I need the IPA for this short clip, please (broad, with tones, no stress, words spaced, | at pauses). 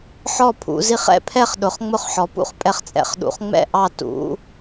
ħɔ˥˨pʰṵ˩˧zi˥˨χ ɛ̰˥˨pʰɛ˥˨χɗʊ˩˧χ ŋ͡mʊ˥˨χħɔ˩˧pṵ˥˨χ pʼɛ˥˨χt͡sʼɛ̰˥˨χɗṵ˩˧χ ŋ͡mɛ̰˥˨ʔɑ˥˨ tṵ˩˧